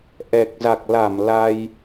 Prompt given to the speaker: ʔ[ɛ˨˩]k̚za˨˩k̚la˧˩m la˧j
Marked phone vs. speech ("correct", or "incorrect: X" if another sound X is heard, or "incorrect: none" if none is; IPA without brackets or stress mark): correct